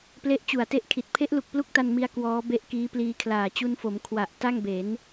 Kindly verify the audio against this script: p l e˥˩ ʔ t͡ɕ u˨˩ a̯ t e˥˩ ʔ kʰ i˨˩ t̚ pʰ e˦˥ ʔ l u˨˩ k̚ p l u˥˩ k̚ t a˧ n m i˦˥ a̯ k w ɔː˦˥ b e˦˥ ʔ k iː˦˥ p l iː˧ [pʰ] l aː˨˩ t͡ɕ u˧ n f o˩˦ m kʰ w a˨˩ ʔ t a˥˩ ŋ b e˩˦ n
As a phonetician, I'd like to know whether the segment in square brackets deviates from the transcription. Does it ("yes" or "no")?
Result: yes